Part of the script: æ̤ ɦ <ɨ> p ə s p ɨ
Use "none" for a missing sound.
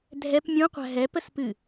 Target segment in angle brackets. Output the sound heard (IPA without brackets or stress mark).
ɛ